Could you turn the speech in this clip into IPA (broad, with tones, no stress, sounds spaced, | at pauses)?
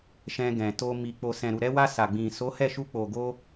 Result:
ʃ ɛ̃˧ ɡ ɛ̃˨ t o˧ m i˨ k͡p o˨ s ɛ̃˨ ɾ u˨ ɾ ɛ˧ w a˧ s a˨ ɡ͡b ĩ˨ s o˨˦ h ɛ˦˨ ʃ u˧ k͡p o˨ ɡ o˧